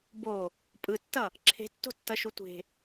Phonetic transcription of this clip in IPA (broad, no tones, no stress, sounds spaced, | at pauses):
b o | pʼ ɯ tː ʌ | ǁʰ e̤ tː o̤ tː ʌ ʃ u tʷ e̤